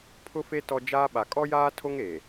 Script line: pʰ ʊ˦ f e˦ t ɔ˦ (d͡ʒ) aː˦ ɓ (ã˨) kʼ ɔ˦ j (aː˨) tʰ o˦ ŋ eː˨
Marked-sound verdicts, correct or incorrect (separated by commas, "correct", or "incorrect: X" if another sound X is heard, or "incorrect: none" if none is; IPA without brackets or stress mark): correct, incorrect: a˨, incorrect: aː˦